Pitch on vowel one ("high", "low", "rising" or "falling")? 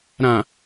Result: low